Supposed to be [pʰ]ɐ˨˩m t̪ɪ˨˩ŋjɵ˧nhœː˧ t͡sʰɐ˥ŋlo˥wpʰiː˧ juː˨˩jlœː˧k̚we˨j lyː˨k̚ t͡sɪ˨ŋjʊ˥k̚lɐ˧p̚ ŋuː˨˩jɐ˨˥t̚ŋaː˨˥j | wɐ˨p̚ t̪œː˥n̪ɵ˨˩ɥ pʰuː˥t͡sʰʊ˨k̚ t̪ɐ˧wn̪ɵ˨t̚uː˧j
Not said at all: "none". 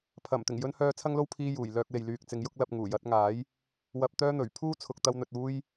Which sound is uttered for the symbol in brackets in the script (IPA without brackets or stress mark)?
pʰ